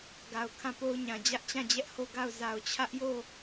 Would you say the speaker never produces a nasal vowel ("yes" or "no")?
no